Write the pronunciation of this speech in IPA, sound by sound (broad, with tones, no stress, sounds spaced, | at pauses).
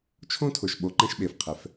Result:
t͡ʃʰ õ˦ tʰ ʊ˨ ʃ ɓ o˨ ǃ ɛ̃˦ ʃ ɓ e˨ f qʰ ɛ˨ f